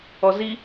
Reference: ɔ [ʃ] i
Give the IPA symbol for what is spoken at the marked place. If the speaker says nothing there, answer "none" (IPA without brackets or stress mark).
z